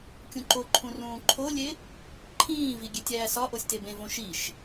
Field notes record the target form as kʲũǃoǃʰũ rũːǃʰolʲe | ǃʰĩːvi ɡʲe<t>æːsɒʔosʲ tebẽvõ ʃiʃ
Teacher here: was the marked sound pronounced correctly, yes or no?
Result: no